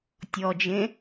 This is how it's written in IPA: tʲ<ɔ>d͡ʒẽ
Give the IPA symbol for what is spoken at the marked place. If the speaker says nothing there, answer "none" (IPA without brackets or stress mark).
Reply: ɔ